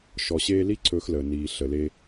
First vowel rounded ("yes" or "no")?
yes